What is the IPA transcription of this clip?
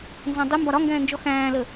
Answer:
n z ɑ̃ dˤ ɪ m b ɒ ɾ ɒ ŋ ɡ ɛ̃ː n d͡ʒ ɔ x æ̃ː l ə

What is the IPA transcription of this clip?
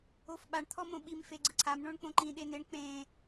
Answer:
o f ɓ a ɳ t̪ʰ ɔ m õ ɓ i m f e ɡ͡ǀ ɯ ǀʰ a m ɳ õ ɳ k͡p õ ǃ ĩ ɗ e n e ɳ k͡p ẽ

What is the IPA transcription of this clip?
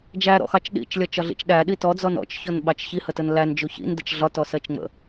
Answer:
d͡ʒ æ ɾ ɔ̰ x ɑ t͡ʃ ɗ ḭ t͡ʃ lʲ ɒ t͡ʃ ɒ ɮ ḭ t͡ʃ ɗ æ ɗ i t ɔ d͡z ɔ n ɔ̰ t͡ʃ ç ɔ n ɓ ɑ t͡ʃ ç i h ə t ə n l æ n d͡ʒ u ç ḭ n d ə t͡ʃ ɮ ɒ t ɔ s ɜ t͡ʃ ŋ͡m ə̰

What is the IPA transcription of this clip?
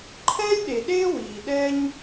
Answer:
ǃʰ ɛː˦ lʲ ɗ e˨ ɗ eː˦ w iː˨ ɗ ɛ˦ ɲ

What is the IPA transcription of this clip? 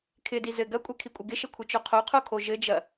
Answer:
kʰ ɪ d i z ɘ ɡ ɐ kʷʼ ɘ kʰ i kʷʼ ɪ ɡ ɪ ʃ ə kʷʰ ɘ t͡ʃ o qʰ o qʰ o kʰ o ʒ ɘ d͡ʒ ɐ

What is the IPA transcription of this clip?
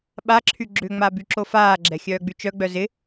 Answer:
ɓ a ǁʰ y ɡ͡ǁ ʏ ŋ͡m a b y ǁ o f aː ɡ͡ǁ ɛ xʲ œː ɡ͡b y t͡ʃ œ ɡ͡b œ z ɪ

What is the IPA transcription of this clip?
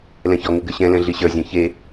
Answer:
l ɛ̃ ç ɔ ŋ ɪ ɡ ɘ ɕ ɛ̃ l ɛ̃ ɮ i ɕ ə˞ zʲ ɔ̃ ç e

